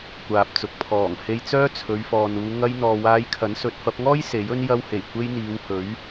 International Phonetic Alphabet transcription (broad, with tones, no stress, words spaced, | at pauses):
kʷaː˨p̚t͡sʊ˨k̚ pʰɔː˨˩ŋhe˧jt͡sœː˥ t͡sʰɵ˨˧ɥfɔː˨nuː˨˧ ŋɐ˧jn̪ɔː˨ waː˧jkʰɐ˨˥n sɵ˨t̚fɐ˧p̚ŋɔː˥j se˨˥jɵ˥n jɐ˧whe˨˩j kʷe˥jn̪iː˨˧whɵ˨˥ɥ